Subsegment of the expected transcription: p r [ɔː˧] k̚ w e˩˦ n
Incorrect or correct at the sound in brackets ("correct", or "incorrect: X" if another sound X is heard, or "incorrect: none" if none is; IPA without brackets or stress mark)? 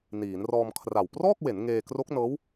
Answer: incorrect: ɔː˥˩